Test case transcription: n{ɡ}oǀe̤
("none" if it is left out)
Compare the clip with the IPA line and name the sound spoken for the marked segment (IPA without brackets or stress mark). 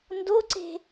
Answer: d